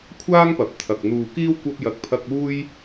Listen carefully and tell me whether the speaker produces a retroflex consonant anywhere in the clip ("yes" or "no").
no